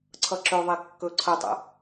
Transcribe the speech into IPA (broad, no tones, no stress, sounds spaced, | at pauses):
ǀʰ ʌ ǁ ɵ ðˤ e kː ɵ ǀʰ ə tˤ ə̰